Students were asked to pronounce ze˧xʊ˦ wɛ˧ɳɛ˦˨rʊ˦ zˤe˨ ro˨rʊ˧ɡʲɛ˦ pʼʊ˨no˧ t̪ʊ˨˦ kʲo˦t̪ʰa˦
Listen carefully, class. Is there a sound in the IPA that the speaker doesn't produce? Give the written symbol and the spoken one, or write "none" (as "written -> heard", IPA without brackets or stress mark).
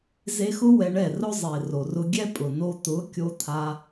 none